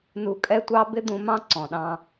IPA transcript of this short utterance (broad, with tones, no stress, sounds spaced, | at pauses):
n u˧ kʼ ɛ˥ tʷ ɑ˥ b ɪ˥ d̪ ũ˧ m ɑ̃˥ ǀ ɔ̃˩ ɗ ɑ̃˧